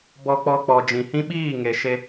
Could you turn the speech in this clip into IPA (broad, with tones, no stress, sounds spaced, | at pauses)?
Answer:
b ɔ˧ k͡p ɔ˧ k͡p ɔ˨ d͡ʒ ĩ˨ h ĩ˦ ɓ iː˦˨ ŋ e˨ ʃ e˧